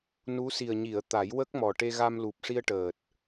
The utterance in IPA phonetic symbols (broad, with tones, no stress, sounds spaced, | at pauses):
n u˧˥ s i˨˩ ə̯ ɲ i˨˩˨ ə̯ t̪ a˨˩˦ j w ə˦˥ k̚ m ɔ˨˩ ʈ e˧ ɣ a˧ m l u˨˩ p̚ ʂ i˧ ə̯ ʈ əː˨˩ t̚